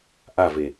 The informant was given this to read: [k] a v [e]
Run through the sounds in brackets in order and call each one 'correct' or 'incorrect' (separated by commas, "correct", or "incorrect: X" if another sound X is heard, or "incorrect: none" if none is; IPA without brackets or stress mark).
incorrect: ʔ, correct